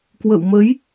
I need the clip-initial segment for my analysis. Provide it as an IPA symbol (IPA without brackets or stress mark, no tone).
k